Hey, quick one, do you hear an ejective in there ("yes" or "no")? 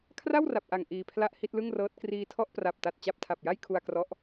no